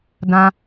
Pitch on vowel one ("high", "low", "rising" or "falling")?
high